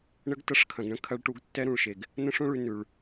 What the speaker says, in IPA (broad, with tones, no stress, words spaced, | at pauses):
ɳə˦ɡtɐ˦ʂkʰɐ̃˨ɡɳə̃˦ kʰɐ˦ɭʈu˦ɡ tːɛ˦ɾũ˨ɭʃe˨ɡ | nə̃˦ʂõ˦ɭʉ˨ nʉ˨ɭ